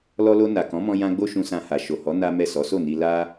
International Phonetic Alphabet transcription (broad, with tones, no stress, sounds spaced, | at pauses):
l ɔ˧ l o˧ n a˨ k ɔ̃˨˦ m ɔ̃˧ j ã˦ ɡ͡b o˦ ʃ ũ˧ s ã˧ h a˨ ʃ o˨ h ɔ˨˦ n a˦ m ɛ˦˨ s ɔ˨˦ s o˦˨ n i˧ l a˦